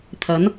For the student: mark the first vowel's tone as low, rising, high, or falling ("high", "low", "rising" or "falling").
rising